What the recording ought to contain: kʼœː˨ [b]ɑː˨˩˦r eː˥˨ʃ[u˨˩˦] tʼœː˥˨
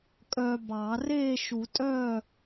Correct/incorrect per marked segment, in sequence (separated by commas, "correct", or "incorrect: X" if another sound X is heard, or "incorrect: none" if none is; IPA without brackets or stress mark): correct, correct